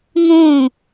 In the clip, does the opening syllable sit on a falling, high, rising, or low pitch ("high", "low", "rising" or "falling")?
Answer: falling